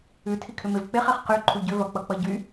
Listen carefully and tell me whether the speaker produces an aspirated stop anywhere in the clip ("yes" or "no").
yes